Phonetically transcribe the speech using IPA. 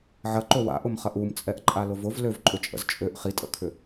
ʕ ɐ ǃ o w a̰ ʔ ʊ m χ ɐ ʔ u m t͡sʼ ɛ ʔ ǃʼ a l ʊ v ʊ v l ø v ǃʼ ʏ t͡ʃʼ ə̰ z t͡ʃʼ ø ʔ χ i tʼ ə̰ kʰ ʏ

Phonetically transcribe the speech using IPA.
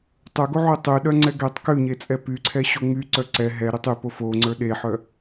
tˤ ə˞ ɡ o ʕ u tˤ ʉ ɗ œ ŋ͡ǀ ɛ ɡ ɛ tˤ k ʉ ɲ e t͡sʼ ɛ p y ǀʰ ɛ ɕ o ŋ͡m y ǀ œ ǀ ɛ ɦ ɛ ɾ y tˤ y p o f o ŋ͡ǀ ə˞ ɗ e ħ œ

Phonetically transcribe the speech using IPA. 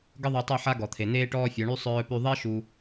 ɡ ə˦ ðˤ u˧ tˤ ɛ˦˨ ħ a˦ ɡ ɔ˨ t̪ʰ e˨ n eː˦ ʈ ɔː˦ fʲ o˨˦ ɳ y˦ sˤ œː˦ p y˦ ðˤ e˦ ʃ u˧

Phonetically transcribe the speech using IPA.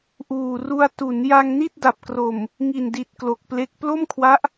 ʔ uː˨˩ r u˧ a̯ t u˩˦ n j a˧ ŋ n i˥˩ t̚ d a˨˩ p̚ k r o˨˩ m | ŋ i˨˩ n d i˨˩ t̚ k l o˨˩ k̚ p l e˦˥ k̚ p l o˥˩ m kʰ w a˦˥ ʔ

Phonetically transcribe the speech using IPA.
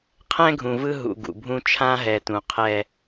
qʰ ɛ̃˦ ɡʱ ũ˨ v ɯ˦ ɦ ṵ˨ ɡ ṵ˨ bʱ ũ˦ t͡ʃʰ ã˦ ɦ ɛ˨ t ũ˨ qʰ ɛ˦

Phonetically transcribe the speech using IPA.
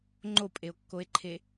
ŋ͡ǃ o pʼ e o̯ kː o e̯ ǃʰ e

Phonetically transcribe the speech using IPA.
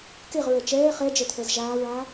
k e ʁ ɹ ɛ t͡ʃ ɛː χ ɛ d͡ʒ ɛ t̪ʰ ɛ z ʒ aː ɹ aː

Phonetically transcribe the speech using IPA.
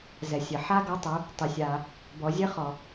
z ɛ˩ sʲ ɘ˩ ħ a˥ ɡ ɔ˧˥ tˤ ə˞˩˧ | tˤ ɘ˩ sʲ a˩ | b ɔ˩˧ zʲ ɘ˧˥ χ ɔ˩

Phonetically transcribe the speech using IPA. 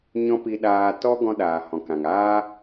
ɲ ɔ̃˦ p i˧ ɗ aː˧ t ɔ˦ ɡ ɔ̃˧ ɗ aː˨ h ɔ̃˨ k ã˨ ŋ aː˦

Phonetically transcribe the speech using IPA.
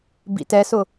b ḭ t ɛ s ʊ

